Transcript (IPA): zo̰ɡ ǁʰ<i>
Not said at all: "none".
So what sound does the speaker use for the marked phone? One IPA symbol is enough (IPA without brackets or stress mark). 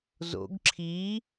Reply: i